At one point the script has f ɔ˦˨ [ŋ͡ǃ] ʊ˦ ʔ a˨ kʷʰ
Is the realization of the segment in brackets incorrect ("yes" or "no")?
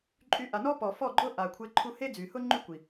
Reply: yes